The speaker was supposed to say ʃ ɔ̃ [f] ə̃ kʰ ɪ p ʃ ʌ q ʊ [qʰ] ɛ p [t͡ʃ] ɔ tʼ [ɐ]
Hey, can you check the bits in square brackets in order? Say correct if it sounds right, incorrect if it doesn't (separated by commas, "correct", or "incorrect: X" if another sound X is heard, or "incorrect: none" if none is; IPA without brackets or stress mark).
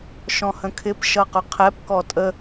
incorrect: h, correct, incorrect: k, incorrect: ə